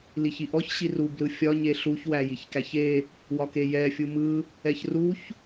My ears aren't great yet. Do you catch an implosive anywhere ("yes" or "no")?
no